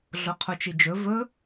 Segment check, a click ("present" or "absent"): absent